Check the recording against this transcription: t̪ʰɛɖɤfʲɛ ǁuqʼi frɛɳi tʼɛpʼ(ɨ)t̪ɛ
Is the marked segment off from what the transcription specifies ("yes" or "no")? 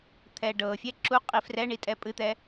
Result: no